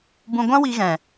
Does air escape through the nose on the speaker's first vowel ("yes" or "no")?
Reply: yes